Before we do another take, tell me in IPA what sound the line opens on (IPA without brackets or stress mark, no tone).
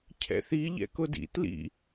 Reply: cʰ